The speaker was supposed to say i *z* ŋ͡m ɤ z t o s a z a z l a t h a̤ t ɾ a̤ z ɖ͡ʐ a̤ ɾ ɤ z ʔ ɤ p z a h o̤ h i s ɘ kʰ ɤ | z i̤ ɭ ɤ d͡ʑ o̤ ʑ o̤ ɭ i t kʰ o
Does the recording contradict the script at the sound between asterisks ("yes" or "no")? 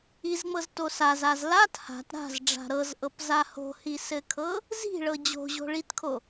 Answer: no